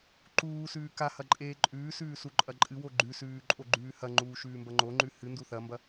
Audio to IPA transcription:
ǃ uː s ʉː k a h ɐ ǃʼ eː ǃʼ ʉː s ʉː s u ǃʼ ɐ ǃʼ ɨ w o ɡ͡ǃ ʉ s ʉː ǃʼ o ɡ͡ǃ ʉː h ɐ ŋ͡ǃ uː ʃ ʉː m b ɐ ŋ͡ǃ o ŋ͡ǃ ʉ h ɨ n d u θ ɐ m b ɐ

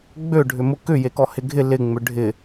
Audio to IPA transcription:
ɡ͡b ø ɖʱ ʏ m ʊ k ʏ j e k ɔ h ɪ ɡʱ ɪ l ɪ ŋ͡m ʏ ɖʱ ɪ

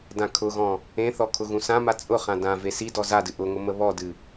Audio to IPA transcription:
d ã kʰ ʊ ɣ ɔ̃ | ẽ θ ɔ kʰ ʊ ɣ ũ s ã m a t͡sʼ ʊ χ ã d ã v e s i d ɔ z a d ɨ ʔ ʊ ŋ ʊ m ə β ɔ d ɨ

